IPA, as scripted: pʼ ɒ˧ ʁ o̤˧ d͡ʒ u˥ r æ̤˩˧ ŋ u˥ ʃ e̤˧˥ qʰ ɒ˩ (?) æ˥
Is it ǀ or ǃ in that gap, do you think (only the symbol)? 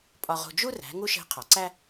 ǀ